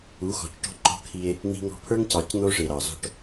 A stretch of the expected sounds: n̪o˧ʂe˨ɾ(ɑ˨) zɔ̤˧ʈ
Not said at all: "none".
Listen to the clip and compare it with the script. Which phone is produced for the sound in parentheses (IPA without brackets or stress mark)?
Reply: ɑ˨